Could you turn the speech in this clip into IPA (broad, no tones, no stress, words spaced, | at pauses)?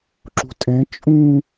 ǁṳtʼɛ̃ t͡ʃʼũ